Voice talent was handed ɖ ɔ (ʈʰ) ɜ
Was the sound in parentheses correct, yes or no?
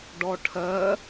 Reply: yes